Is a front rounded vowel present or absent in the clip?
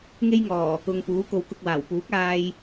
absent